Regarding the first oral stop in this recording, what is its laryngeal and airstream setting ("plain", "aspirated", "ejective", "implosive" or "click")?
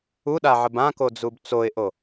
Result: implosive